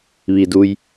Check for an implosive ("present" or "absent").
absent